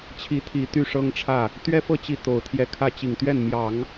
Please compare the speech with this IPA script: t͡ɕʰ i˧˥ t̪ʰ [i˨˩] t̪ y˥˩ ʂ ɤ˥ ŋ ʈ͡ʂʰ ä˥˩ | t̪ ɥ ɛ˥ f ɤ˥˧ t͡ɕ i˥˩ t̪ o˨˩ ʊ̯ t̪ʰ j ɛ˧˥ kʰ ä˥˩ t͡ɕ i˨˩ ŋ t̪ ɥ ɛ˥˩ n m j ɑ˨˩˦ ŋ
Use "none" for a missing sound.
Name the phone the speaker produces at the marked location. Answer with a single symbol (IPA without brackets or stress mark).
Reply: i˨˩